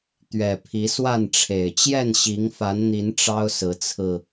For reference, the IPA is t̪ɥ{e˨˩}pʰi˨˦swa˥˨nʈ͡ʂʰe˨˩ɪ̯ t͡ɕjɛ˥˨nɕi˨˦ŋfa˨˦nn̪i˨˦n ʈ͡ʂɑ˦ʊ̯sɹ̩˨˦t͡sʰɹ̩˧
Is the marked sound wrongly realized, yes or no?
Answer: yes